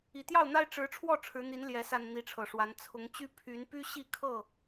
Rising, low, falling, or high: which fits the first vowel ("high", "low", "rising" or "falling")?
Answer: low